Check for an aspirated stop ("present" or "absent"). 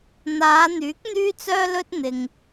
absent